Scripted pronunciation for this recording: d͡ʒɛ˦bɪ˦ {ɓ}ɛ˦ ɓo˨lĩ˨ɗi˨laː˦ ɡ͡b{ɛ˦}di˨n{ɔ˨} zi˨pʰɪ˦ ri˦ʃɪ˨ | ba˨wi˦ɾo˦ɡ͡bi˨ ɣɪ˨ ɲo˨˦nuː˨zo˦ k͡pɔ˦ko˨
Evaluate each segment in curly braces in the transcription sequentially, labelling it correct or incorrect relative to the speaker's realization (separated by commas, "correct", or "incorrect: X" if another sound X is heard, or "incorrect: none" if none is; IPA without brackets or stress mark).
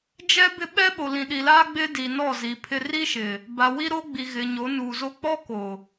correct, incorrect: ɪ˦, incorrect: ɔ˦˨